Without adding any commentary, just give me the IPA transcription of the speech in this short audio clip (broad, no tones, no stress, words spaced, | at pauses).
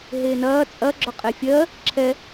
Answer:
ɦeːnɐː t͡sʼɐ ɡ͡ǁɔqʼefʲɜ | ǁʰɛ